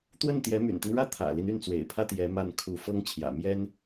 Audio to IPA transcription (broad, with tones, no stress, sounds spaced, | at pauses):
t̪ w ə˥˩ n t̪ j ɛ˧˥ m y̰˨˩ n t̪ i˦ ŋ ɻ ä˥˩ t̪ʰ ä̰˨˩ l i˦ n y˥˩ n t͡s w ḛ˨˩ ɪ̯ pʰ ä˥ t̪ j ɛ˧˥ m a˥˩ n kʰ u˧˥ f ɤ˥ ŋ t͡ɕʰ j ä̰˨˩ m j ɛ˥ n